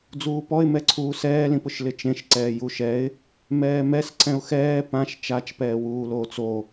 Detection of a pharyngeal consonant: absent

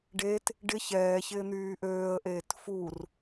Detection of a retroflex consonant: present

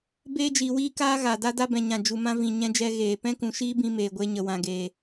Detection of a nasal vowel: present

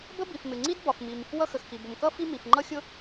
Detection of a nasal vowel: absent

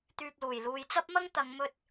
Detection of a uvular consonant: absent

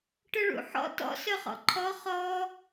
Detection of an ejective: absent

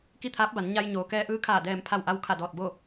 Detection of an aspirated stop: present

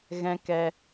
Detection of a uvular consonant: absent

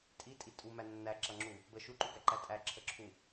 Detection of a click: present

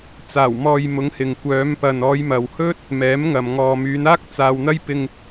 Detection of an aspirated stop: absent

